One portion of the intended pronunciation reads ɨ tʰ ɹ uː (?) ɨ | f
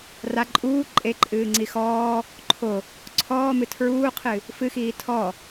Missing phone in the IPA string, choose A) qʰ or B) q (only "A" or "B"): A